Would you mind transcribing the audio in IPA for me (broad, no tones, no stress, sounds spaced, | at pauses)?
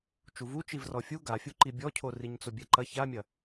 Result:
t͡ʃ u v u t͡ʃ i v r ɔ fʲ u ɡ a fʲ u ǃ i bʲ ɔ cʰ o r i ɲ t͡s o bʲ ɛ ǃ ɐ ç a mʲ ɐ